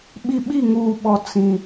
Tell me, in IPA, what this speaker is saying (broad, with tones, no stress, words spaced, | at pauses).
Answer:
ɓi˦ ɓi˦˨ŋuː˨ɓɔ˨ t͡sĩ˨